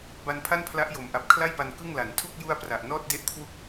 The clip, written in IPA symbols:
b a˧ n pʰ a˥˩ n pʰ l a˦˥ ʔ j o˩˦ m ʔ a˨˩ p̚ kʰ l a˥˩ j p a˧ n k ɯ˥˩ ŋ l a˩˦ n tʰ u˥˩ k̚ j u˥˩ a̯ p r a˨˩ ʔ n ɔː˥˩ t̚ d e˥˩ ʔ kʰ w u˥˩ k̚

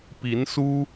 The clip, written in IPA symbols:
p i˧˥ n s u˥

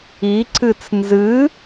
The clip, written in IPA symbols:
i ǀ ɨ t͡s n z ɨ

